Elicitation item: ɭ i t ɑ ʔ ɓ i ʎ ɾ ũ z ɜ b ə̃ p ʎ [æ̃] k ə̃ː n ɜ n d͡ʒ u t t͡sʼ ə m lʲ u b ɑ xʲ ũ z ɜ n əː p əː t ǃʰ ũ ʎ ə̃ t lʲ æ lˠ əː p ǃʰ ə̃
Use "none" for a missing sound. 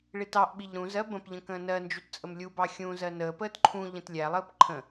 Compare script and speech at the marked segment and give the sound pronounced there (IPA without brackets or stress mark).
ə̃